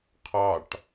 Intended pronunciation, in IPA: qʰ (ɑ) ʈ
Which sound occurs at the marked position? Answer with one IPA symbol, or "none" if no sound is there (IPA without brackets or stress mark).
ɑ